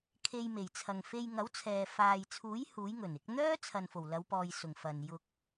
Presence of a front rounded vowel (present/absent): present